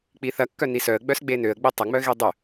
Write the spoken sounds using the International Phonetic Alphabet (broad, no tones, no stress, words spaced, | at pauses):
k͡piθɐ kːœnisœə̯ ɡ͡bœsɡ͡benøə̯ɡ͡bi tˤɐŋ͡mœɣi dˤʏ